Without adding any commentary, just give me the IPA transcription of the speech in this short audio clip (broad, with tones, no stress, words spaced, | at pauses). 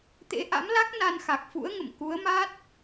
t̪ḛ˧˥ʔa̰˧˥mla˦˥k̚ na˧n xa˨˩k̚fṵ˧˥ə̯ŋə̰˧˨m ku˨˦ə̯ma˦˥t̚